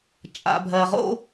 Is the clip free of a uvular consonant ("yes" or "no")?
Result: no